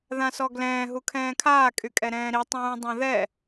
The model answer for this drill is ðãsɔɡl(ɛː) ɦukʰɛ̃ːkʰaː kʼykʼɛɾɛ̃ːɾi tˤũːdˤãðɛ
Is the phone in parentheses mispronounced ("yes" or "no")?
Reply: yes